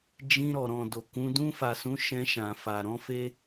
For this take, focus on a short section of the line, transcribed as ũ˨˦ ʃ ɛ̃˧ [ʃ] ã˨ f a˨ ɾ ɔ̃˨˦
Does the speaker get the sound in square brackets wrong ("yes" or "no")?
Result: no